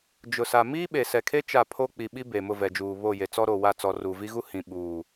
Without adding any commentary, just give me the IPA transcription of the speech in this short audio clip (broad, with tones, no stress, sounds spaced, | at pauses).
d͡ʒ ʊ˨ s a˨ m iː˦ ɓ e˨ s ɛ˨ kʰ e˦ t͡ʃ a˦˨ pʰ o˦ k͡p i˨ ɓ i˦ b e˨ m ʊ˦˨ v ɛ˨ d͡ʒ uː˨ β o˦˨ j e˨ t͡s ɔ˦ ɾ o˨ w a˦˨ t͡s ɔ˨ r u˨ v i˦ ɣ u˦ h ĩ˨ ɓ uː˨